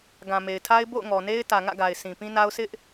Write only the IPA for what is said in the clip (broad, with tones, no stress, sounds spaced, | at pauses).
ɡ ã˨ m e˨ ɪ̯ tʰ a˦ ɪ̯ b o̰˦˨ ʊ̯ ŋ ɔ˨ n e˦ ɪ̯ t ä˨ ŋ ä̰˦˨ ɡ a˨ ɪ̯ s ĩ˨ p ĩ˦ n a˦ ʊ̯ s ɪ˦ ʔ